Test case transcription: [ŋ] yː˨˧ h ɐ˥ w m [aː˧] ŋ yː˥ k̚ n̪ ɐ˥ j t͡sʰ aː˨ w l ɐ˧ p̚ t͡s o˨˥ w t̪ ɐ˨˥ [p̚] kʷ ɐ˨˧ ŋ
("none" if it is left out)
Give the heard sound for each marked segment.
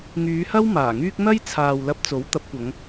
ŋ, aː˨˩, p̚

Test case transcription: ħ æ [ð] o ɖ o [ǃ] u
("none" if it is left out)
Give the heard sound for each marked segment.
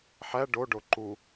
ɖ, ǃ

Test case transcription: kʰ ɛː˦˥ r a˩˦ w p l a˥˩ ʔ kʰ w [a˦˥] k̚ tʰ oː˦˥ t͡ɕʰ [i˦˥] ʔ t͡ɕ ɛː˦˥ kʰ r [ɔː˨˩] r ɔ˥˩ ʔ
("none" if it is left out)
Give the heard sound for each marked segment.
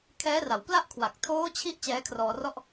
a˨˩, i˦˥, ɔː˧

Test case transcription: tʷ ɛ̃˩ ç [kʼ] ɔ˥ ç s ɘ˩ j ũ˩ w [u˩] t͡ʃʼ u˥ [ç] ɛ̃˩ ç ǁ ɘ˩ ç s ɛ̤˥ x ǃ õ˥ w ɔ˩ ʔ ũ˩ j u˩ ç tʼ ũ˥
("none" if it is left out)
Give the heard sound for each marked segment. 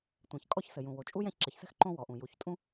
kʼ, o˩, j

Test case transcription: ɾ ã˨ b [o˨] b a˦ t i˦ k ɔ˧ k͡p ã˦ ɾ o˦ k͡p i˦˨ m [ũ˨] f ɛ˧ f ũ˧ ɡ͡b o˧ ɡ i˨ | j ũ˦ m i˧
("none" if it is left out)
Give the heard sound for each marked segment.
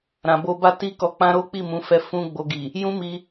o˧, ũ˨˦

